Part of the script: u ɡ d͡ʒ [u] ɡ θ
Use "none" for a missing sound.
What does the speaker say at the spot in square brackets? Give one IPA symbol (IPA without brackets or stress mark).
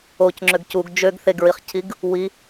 ø